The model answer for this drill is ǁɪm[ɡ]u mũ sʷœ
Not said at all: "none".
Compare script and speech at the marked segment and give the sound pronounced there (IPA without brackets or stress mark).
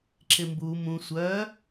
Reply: b